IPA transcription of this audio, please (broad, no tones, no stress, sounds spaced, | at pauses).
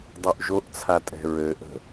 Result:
dˤ ø ʔ ʒ o ʔ t͡sʰ a tʼ ɛ̤ ɹ ø ʔ ə̤